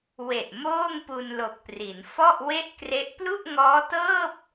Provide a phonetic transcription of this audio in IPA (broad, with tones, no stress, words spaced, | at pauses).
we˨˩ʔmoː˥˩ŋ pu˧nlo˨˩k̚pri˩˦n fɔ˥˩ʔ we˥˩ʔkre˦˥ʔ plu˥˩ʔŋɔː˦˥tɤː˥˩p̚